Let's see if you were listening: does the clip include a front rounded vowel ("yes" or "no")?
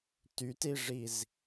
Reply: yes